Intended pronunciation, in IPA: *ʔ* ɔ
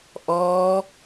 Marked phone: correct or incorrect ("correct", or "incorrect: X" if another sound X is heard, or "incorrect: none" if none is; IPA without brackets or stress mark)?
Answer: correct